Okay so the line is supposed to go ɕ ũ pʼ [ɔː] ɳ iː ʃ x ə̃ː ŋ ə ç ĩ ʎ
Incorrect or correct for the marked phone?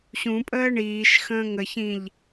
incorrect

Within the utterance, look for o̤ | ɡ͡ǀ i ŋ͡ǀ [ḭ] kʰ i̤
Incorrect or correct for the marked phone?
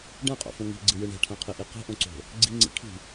correct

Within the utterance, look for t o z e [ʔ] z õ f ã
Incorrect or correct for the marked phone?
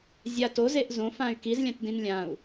correct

